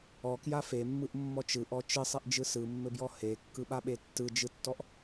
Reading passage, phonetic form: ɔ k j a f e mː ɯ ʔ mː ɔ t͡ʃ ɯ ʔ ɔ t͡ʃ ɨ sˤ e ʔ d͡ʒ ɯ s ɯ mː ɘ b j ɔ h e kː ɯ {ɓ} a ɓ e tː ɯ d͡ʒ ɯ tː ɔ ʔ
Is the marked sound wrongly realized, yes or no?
no